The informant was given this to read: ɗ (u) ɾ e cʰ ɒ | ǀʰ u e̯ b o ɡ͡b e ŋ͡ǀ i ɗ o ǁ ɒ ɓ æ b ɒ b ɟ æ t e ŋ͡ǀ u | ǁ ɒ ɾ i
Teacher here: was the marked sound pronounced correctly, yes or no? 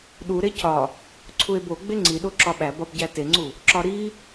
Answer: yes